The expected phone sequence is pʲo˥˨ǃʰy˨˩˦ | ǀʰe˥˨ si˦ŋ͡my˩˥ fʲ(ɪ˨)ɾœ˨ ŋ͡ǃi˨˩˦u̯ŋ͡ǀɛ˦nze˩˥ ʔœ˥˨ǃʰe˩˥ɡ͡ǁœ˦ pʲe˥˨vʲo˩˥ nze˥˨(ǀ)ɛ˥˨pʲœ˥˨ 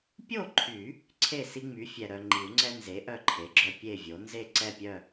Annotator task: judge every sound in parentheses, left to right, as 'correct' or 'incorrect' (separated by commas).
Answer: incorrect, correct